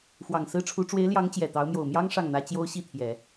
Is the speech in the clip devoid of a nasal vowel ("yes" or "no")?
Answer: yes